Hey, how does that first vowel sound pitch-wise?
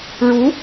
rising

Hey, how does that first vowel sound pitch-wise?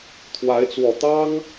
rising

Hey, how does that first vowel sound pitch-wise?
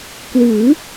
rising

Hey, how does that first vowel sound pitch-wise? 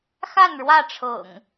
falling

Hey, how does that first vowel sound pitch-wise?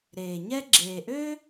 low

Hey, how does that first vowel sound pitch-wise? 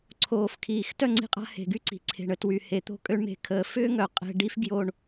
low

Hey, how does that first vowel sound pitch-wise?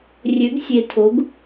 rising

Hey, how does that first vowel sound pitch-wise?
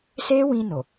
high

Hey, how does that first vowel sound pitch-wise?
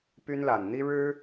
high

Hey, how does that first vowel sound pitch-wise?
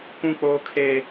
high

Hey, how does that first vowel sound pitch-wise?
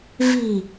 low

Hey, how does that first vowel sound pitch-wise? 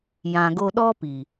low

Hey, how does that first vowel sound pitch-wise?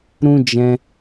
high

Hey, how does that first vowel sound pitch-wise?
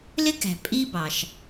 high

